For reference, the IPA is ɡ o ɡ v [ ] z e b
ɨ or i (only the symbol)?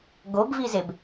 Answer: i